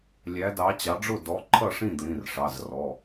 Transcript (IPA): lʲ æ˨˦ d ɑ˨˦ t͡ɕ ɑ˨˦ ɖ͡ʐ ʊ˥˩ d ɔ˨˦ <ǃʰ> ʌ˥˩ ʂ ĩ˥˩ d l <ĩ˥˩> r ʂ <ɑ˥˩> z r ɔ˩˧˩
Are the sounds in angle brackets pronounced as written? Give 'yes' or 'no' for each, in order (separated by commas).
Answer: yes, no, no